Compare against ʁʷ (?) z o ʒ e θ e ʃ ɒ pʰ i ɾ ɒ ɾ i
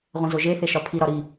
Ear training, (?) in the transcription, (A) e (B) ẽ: B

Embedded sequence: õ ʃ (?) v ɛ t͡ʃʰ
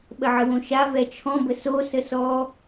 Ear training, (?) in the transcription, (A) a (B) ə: A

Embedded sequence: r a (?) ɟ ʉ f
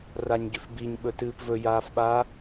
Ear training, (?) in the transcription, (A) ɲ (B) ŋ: A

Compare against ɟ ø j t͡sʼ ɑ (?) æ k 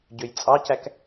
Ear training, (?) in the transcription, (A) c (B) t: A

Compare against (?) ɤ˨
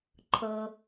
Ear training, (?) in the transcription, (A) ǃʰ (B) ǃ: A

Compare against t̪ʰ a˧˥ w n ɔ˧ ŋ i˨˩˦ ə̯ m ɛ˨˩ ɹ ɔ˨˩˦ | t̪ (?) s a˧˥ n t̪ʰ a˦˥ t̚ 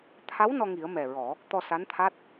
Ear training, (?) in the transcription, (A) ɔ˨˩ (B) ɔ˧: B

